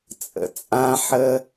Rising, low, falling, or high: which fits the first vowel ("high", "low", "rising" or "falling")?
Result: low